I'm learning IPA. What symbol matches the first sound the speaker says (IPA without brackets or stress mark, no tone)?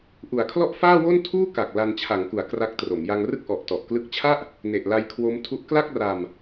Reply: ʔ